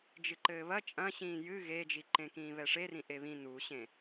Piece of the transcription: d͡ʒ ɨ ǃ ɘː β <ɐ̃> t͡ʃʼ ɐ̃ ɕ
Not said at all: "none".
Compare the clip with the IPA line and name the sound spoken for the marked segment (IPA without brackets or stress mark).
ɐ